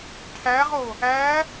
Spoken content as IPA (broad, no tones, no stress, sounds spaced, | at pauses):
ʈʰ æ ʁ o | æ